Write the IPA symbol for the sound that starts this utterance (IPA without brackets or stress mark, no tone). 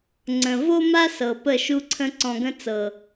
ŋ͡ǀ